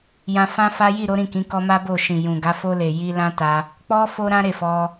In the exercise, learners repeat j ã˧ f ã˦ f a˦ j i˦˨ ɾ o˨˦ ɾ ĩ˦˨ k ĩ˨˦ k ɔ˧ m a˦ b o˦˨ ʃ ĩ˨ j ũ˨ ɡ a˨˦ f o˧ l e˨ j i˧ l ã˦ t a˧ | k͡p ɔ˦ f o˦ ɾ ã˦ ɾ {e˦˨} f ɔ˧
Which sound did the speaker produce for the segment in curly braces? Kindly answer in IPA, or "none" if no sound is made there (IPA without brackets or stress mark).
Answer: e˦˨